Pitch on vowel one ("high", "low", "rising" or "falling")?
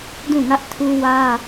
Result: falling